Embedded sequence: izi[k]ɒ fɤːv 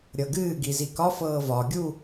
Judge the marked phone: correct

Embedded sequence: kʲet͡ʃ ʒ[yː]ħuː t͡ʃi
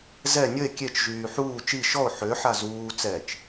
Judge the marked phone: correct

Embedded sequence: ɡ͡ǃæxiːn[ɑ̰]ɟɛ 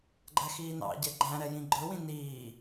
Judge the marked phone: correct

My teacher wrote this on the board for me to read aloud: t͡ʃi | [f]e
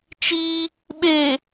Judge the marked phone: incorrect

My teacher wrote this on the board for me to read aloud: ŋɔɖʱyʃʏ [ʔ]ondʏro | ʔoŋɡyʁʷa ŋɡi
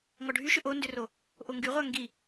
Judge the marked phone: correct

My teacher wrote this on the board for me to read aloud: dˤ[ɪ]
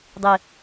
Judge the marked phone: correct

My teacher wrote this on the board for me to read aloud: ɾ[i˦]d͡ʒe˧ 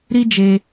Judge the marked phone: correct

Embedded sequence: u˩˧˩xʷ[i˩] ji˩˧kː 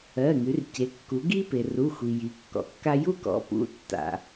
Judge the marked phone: correct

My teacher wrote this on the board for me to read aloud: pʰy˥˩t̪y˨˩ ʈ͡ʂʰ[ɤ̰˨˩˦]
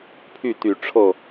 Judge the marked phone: incorrect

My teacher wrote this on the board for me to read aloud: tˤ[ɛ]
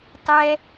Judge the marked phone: correct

